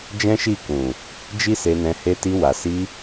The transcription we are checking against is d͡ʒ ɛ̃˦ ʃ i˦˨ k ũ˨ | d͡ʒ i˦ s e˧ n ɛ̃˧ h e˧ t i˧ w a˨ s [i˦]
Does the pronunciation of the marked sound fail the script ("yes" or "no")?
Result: yes